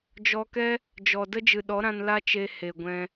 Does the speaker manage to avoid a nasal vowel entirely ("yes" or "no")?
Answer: no